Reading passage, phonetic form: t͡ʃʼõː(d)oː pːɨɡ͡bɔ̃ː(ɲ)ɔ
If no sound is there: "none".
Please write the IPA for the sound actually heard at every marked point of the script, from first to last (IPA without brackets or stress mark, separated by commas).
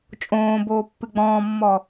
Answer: b, mː